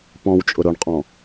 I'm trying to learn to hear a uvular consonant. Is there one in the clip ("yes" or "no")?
yes